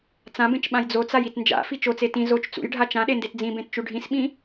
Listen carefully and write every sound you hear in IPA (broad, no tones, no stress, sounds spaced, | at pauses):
t͡s ã b ẽ t͡ʃ ɓ ã j d͡z o t͡s a j i t n d͡ʒ a̰ f i t͡ʃ o t͡s e t ĩ z o t͡ʃ t͡s ṵ j ɖʱ a t͡ʃ ã ɗ e n d e t d͡z ĩ b ẽ t t͡ʃ u ɖʱ ĩ s ɓ ĩ